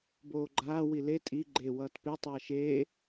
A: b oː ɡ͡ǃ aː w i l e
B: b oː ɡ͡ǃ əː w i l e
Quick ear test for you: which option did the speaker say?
A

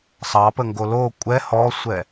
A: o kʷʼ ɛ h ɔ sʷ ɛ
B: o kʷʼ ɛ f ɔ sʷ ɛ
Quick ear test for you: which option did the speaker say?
A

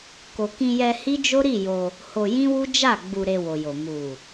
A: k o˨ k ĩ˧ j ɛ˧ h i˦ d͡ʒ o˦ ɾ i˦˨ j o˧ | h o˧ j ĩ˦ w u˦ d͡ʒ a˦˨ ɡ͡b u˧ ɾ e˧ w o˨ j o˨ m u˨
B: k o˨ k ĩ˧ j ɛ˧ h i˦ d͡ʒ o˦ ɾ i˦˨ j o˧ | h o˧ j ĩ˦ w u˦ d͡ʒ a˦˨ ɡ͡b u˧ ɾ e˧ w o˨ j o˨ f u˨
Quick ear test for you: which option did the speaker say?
A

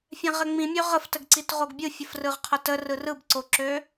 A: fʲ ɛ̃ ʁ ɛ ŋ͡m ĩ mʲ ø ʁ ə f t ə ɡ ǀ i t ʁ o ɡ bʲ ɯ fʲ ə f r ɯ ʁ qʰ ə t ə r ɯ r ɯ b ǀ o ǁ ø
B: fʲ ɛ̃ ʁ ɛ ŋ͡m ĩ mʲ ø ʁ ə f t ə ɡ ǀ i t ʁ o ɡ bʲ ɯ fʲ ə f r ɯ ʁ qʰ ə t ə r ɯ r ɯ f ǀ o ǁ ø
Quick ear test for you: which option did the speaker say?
A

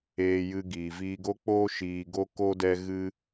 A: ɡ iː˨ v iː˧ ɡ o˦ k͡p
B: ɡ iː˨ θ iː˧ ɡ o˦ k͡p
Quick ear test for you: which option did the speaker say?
A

